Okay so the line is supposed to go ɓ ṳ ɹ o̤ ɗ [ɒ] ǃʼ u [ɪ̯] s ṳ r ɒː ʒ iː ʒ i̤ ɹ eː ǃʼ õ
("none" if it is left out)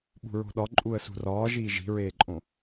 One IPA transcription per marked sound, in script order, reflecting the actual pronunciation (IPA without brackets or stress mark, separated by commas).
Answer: ɒ, ə̯